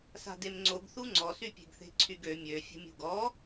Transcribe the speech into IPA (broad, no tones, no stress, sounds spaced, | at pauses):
s a̤ d e m ŋ͡ǀ o ɡ θ u ŋ͡ǀ ɔ s y pʲ e̤ ɡ θ e̤ ǀʰ y ɡ ø mʲ ø fʲ ə̤ mʲ ṳ ɡ ɔ